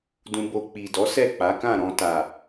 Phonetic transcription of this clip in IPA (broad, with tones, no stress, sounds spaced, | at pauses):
d ũ˧ b o˧ k͡p i˨ d ɔ˨˦ s ɛ˦˨ k͡p a˨˦ k ã˦˨ ɾ ɔ̃˧ t a˨